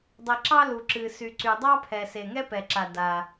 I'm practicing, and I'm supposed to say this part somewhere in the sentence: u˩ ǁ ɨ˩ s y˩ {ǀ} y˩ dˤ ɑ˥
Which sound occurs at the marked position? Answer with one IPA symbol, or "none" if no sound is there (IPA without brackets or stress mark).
ǀ